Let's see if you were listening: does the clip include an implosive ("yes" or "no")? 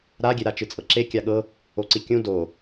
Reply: yes